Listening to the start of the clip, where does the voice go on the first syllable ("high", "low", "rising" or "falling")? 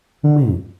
falling